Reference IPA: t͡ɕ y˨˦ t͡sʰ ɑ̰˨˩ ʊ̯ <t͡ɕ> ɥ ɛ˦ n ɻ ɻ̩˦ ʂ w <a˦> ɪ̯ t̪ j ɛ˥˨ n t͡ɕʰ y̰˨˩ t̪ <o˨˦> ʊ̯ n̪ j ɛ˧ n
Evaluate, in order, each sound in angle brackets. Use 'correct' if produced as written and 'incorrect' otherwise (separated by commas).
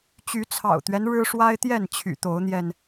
incorrect, correct, correct